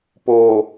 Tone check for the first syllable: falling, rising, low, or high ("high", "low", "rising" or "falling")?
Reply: low